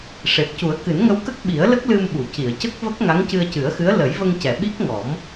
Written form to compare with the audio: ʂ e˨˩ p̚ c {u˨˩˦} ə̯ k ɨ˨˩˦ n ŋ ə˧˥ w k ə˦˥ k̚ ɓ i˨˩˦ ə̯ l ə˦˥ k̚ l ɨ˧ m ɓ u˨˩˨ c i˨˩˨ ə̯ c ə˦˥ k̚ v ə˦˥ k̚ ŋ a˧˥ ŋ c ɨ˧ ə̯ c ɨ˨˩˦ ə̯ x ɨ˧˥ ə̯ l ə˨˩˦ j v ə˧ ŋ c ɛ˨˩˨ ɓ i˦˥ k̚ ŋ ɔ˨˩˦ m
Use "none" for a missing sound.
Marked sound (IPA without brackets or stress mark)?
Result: u˨˩˦